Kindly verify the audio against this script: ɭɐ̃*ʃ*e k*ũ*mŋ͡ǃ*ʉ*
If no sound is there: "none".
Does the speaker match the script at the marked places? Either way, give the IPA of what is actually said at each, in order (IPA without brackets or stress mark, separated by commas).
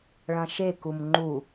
ʃ, u, u